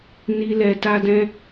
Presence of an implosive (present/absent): absent